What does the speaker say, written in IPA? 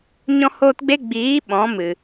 ɲ ɔ̃˧ h oː˧ t ɡ͡b e˧ ɡ͡b iː˨˦ ɓ ɔ̃˨˦ m ɨ˨

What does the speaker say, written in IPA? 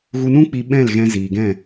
ɣ u˧ n ũ˦ k͡p i˧ ɓ ɛ̃˦˨ l ɣ ɛ̃˧ z iː˨ ɡ ɛ̃˦˨

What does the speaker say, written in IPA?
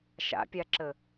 ʃ a̰ pʲ a ǁ ə

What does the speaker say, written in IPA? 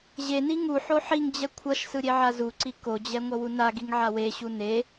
ʑ e n i ŋ u ħ o ħ i ŋ d͡ʑ ɛ kʷʰ ʌ ʃ s ɯ ɾʲ e ʕ a z u ǀ i k o d͡ʑ ɛ ŋʷ ʌ w u n a ɡ i ŋ ʕ a w e ɕ u n e

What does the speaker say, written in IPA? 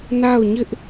n a˦˨ ʊ̯ ɲ ɪ˦ ʔ

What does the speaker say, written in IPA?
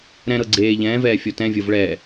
ɾ ɛ̃ ɾ ɤ ɡ͡ǀ eː ʎ ɛ̃ː v ɛː fʲ ɔ t ɛ̃ vʲ ɤ v ɭ ɛː

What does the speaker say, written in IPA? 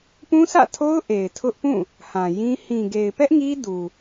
p ũ˦ sʰ ä̰˦˨ tʰ o˦ ʊ̯ ʔ e˨ ɪ̯ tʰ ʊ˦ ʔ p ũ˦˨ | h ã˨ j ĩ˦ h ĩ˨ ɡ e˨ ɪ̯ p ɛ˦ ʔ ŋ i˦ d u˨

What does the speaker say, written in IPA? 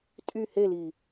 tʼ y h e l i

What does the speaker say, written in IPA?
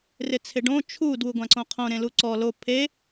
r ɪ t͡sʰ ɪ ɖ õ t͡ʃʰ u d w u ɡʷ ã ǀ õ qʰ õ ɾ ẽ l u ǀ ɔ l o pʰ e

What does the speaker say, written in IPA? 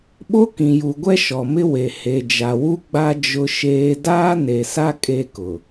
ɓ o˦ k ĩ˨ j u˨ ɡʷ ɛ˦ ʃ ɔ˨ m ɪ˦ w e˨ h e˨ d͡ʒ a˨ w u˦ ɡ͡b a˦ d͡ʒ ʊ˦ ʃ eː˦ d aː˦ n e˨ s a˦ kʼ e˦ k ʊ˨

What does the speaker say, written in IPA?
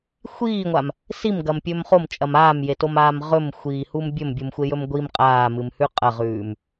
xʷ iː ŋʷ a m | s i m ɡ ɐ m pʲ ɵ m χ o m t͡ʃʼ ɐ m aː m j e t o m aː m ʁ ɵ m xʷ iː h u m bʲ ɵ m bʲ u m xʷ e j ɵ m ɡʷ i m qʼ aː m ɨ m h ʉ qʼ ɐ ʁ ʉː m

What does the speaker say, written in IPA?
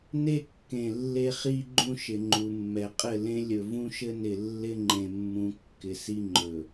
n e˦ kː ẽ˨ lː e˦ χ i˦ ɡ͡ǃ ũ˦ ʃ ɪ˨ ŋ͡ǃ u˨ mː ɛ˨ qʼ ɘ˦˨ l ẽ˦ lʲ ɵ˨ v ũ˦ ʃ ɘ˦ n ɪ˨ lː ɪ˦ ŋ͡ǃ ẽ˨ mː ũ˨ kː ɪ˨ s i˦ ŋ͡ǃ ɵ˨

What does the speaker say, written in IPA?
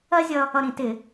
ɜ˥ zʲ ʌ˧ | ʌ˧ ɾ ĩ˧˩˧ t ɪ˧˩˧

